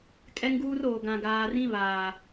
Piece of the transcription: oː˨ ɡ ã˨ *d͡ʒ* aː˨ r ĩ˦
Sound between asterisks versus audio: incorrect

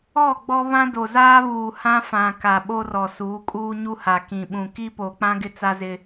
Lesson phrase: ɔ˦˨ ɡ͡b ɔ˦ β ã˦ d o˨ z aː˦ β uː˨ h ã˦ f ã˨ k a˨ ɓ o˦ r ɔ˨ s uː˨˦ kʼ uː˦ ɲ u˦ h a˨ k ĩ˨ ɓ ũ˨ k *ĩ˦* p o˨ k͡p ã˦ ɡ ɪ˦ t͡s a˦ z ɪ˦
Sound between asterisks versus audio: incorrect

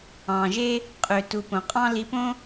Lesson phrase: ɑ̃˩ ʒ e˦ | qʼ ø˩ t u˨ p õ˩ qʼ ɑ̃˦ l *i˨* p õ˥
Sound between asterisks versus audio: correct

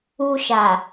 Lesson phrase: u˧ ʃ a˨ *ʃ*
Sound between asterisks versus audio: incorrect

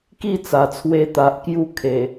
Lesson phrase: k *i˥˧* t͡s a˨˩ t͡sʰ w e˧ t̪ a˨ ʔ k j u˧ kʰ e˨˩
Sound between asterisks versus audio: correct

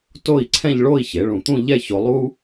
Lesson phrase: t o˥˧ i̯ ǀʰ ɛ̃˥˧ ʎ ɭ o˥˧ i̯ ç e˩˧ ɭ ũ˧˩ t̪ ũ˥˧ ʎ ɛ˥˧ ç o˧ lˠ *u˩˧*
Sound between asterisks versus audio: incorrect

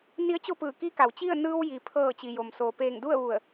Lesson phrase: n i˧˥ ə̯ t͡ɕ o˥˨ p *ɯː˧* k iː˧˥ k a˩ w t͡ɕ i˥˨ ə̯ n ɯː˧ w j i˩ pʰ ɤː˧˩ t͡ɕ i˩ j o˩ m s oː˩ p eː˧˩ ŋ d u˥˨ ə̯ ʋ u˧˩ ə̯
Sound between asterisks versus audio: incorrect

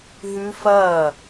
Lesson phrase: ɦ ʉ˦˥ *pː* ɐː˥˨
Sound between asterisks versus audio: incorrect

